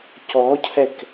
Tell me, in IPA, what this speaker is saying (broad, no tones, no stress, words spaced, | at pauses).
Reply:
cɔcʰɛk